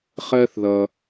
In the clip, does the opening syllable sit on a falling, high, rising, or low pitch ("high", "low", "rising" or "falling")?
high